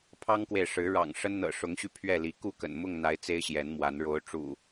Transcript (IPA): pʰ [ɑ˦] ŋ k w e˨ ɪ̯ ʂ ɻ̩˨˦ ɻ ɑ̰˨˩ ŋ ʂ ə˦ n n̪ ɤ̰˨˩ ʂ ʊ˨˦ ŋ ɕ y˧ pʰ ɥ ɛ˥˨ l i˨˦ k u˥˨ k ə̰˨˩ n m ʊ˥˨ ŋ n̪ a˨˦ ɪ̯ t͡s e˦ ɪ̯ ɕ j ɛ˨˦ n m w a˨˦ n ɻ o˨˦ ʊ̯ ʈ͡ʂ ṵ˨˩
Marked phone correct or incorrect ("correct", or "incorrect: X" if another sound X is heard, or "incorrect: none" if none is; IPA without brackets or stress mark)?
correct